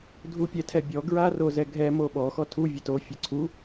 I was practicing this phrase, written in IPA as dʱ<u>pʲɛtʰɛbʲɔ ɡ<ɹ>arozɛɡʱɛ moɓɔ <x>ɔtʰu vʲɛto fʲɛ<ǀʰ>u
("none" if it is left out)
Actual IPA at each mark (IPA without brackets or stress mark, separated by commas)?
u, ɹ, x, ǀʰ